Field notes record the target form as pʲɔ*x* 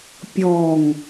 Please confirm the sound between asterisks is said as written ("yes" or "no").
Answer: no